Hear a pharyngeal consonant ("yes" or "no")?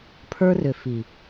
no